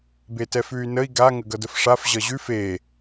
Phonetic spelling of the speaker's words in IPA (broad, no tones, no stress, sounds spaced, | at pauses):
b e t ɛ f ʉ y̯ n ə i̯ ɡ a ŋ ə ɡ ʌ d ə f ʂ a f ʑ ʌ ʑ ʉ f e